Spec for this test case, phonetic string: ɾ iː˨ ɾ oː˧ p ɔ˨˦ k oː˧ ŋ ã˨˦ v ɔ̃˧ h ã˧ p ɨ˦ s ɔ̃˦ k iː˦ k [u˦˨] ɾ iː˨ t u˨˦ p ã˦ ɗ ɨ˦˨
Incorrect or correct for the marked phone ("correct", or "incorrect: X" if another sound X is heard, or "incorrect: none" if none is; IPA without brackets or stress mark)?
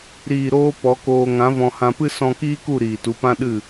correct